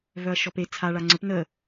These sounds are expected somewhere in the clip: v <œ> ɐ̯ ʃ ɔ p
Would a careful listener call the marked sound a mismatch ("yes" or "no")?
no